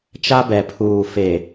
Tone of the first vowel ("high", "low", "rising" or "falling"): high